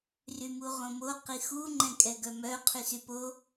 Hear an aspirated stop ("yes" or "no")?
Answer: yes